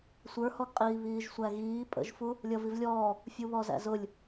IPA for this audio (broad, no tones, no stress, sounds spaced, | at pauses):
sʷ ə˞ h ɔ ɡ qʼ iː β iː ʒ sʷ æ ɣ iː pʼ ə̰ ʒ f u | lʲ ʌ v i v lʲ ɔː | fʲ u β ɔ z æ̰ z ʊ lʲ